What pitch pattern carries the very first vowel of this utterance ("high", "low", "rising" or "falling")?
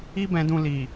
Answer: high